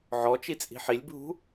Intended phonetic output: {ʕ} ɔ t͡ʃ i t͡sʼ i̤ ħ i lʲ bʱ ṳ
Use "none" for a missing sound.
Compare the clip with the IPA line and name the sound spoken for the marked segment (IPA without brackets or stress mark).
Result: ʕ